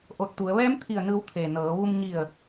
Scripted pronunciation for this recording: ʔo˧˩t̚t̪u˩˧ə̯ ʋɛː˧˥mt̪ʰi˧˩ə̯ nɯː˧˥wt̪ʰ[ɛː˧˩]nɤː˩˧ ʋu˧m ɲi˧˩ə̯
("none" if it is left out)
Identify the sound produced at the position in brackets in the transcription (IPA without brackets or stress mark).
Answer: eː˧˩